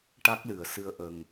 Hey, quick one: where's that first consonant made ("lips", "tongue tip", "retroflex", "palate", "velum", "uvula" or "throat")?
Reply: retroflex